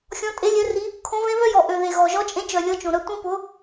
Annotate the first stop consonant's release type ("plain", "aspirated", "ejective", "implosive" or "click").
ejective